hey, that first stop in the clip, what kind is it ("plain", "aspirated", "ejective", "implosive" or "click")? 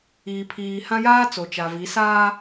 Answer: aspirated